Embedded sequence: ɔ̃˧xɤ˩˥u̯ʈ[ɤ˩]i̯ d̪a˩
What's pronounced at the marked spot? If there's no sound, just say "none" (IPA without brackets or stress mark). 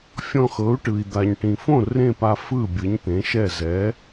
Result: ɯ˩